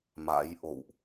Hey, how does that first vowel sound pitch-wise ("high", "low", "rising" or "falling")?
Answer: rising